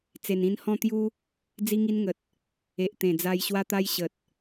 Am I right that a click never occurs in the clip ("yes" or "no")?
yes